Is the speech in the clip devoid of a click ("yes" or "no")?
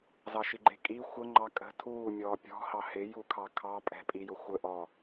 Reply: no